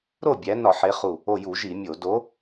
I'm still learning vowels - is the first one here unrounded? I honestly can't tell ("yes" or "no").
no